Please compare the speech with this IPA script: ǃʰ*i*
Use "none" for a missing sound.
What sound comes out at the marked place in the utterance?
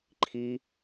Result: i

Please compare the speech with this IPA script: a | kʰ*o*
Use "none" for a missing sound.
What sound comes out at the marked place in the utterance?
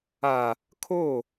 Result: o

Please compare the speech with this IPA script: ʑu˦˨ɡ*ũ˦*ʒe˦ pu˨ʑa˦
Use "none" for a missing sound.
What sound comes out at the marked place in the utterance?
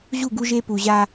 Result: u˦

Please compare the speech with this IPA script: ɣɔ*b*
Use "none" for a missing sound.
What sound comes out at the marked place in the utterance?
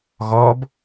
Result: b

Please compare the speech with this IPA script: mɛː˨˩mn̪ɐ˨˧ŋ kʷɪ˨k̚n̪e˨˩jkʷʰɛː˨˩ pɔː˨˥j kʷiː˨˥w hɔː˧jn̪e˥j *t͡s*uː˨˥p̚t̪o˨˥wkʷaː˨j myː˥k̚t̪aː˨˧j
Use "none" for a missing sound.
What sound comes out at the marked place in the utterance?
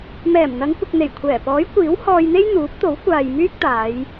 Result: n̪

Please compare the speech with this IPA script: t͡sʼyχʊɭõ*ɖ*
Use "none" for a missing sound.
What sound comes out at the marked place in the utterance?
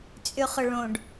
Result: ɖ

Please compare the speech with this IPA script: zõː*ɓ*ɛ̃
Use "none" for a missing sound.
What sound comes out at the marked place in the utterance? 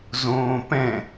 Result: p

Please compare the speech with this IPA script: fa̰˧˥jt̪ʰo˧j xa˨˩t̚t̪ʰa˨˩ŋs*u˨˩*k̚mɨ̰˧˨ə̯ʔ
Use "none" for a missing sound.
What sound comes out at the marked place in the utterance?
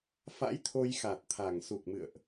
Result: u˨˩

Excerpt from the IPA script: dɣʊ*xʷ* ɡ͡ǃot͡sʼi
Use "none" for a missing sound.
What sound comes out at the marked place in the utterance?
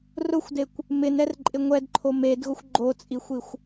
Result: xʷ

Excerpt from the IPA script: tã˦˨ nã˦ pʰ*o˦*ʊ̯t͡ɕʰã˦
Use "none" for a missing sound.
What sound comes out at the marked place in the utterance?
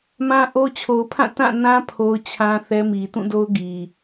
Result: o˦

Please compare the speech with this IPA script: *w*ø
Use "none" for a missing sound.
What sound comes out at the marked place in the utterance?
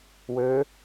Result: w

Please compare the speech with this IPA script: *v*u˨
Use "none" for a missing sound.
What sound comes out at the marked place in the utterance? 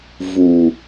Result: v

